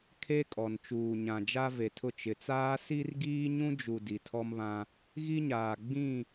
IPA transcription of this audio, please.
kʰe˦kʼɔ˨n t͡ʃuː˨ɲã˨d͡ʒa˦ ve˨tʰʊ˦˨ t͡ʃɪ˨t͡saː˦ si˦rɡiː˦ɲũ˦d͡ʒu˨ di˨tʰɔ˦mβã˦ | ɣi˦ɲaː˨ ɡ͡bĩ˦˨

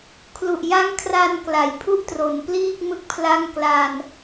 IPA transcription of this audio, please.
kʰlu˨˩ʔja˦˥ŋkʰra˧n kla˨˩jpʰu˥˩ʔtro˩˦npliː˥˩k̚ mɯ˦˥k̚pʰla˥˩ŋ kla˧n

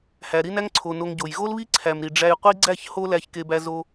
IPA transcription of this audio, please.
hæ˨ɾi˦næ˦ŋǀʰo˨ no˧ŋɟo˨j ɣo˦lβi˦ǀʰæ˨mɾi˨ ɖ͡ʐæ˧jqʷi˦ ɡ͡ǀæ˦˨ç ho˦læ˧ç ke˧bæ˧zo˧

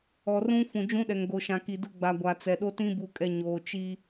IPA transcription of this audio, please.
ɔ˨rũ˦ fũ˨d͡ʒũ˦ɗɛ˨ŋɡo˨ ʃã˨ki˨ dʊ˦ɡ͡ba˨ɡʷa˨ t͡sɛ˨ɗo˦tĩ˦ bu˨kʼɛ˨ ɲoː˨ t͡ʃi˦

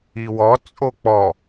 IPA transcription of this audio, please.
iwɔ t͡sʼok͡pɔ

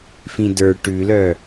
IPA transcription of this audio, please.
fĩdə˞ ʈʉlœ

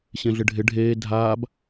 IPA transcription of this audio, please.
ɕẽɮɪɖʱɪ ɖʱeː dʱaːb

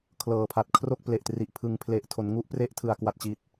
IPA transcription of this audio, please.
kʰlɤː˨˩pʰa˨˩t̚kʰro˥˩k̚ ple˨˩ʔtri˨˩ʔ pʰɯ˩˦ŋ pʰle˨˩ʔtʰo˩˦nŋu˦˥ʔpre˦˥ʔ tʰɯ˩˦a̯kwa˨˩t̚t͡ɕi˨˩t̚

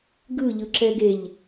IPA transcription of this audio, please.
ɡɯ ʎɯǁɛɡeʎ

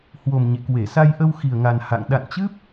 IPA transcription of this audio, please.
hwo˨˩m ɲḛ˧˨ kwe˧˩sa˧jʔə˧w xi˨˩ə̯ŋa˨˩n ha̰˧˨ŋ ɗa̰˧˨nt͡ɕɨ˦˥p̚

